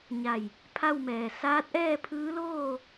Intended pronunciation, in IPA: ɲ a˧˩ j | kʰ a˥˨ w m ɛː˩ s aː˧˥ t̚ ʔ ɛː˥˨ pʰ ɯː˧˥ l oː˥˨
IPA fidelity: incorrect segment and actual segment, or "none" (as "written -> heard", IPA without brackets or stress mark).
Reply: kʰ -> pʰ